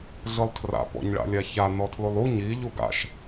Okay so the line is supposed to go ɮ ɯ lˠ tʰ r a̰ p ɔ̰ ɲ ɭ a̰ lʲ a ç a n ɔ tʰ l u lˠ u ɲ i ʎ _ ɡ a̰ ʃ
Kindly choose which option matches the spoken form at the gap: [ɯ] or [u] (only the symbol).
u